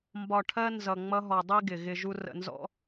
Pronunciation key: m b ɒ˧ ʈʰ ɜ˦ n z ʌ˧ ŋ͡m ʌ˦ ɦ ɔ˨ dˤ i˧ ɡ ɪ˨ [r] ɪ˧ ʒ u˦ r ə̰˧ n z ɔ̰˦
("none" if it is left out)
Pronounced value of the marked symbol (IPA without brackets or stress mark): ɣ